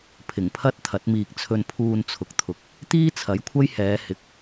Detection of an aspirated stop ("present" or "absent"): present